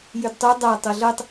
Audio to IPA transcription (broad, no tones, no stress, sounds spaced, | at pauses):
j y d tˤ u dˤ a tˤ ɤ ɮ ɤ tˤ